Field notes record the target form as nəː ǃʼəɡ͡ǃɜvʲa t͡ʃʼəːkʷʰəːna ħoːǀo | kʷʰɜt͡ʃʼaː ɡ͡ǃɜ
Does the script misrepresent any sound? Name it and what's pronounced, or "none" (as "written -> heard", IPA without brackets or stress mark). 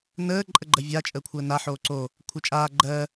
none